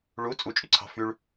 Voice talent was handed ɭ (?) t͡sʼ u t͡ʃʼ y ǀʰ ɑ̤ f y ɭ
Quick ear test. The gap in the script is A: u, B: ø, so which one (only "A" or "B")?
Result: A